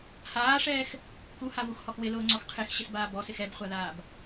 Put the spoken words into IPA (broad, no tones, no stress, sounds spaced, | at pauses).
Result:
h aː ʂ ɛː x | k u h a v u x h ɔ x w ɪ l ʊː ŋ͡ǀ ɔ x qʰ e x ɕ ɪ s b aː b ɔ s ɪ x ɛ b χʷ a ð aː b